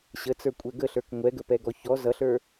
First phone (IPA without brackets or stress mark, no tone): ɕ